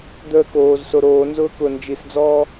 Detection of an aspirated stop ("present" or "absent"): absent